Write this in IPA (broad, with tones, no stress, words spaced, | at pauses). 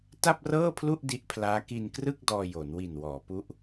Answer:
ta˥˩p̚rɤː˥˩pʰlu˥˩ʔ di˦˥ʔpʰlaː˦˥ ki˧nkrɯ˥˩k̚ dɔː˧jo˩˦nwi˨˩n wɔː˩˦pu˦˥ʔ